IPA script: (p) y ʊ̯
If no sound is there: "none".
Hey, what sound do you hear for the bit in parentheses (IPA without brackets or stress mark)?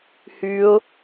h